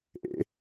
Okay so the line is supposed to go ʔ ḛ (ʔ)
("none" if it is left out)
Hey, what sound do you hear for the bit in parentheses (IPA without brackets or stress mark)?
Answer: none